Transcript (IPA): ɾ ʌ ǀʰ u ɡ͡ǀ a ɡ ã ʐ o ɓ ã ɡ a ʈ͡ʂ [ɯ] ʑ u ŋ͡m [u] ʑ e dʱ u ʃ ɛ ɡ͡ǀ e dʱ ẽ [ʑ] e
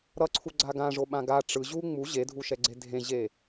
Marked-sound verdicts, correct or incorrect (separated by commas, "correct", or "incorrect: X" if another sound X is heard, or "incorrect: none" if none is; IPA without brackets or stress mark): correct, correct, correct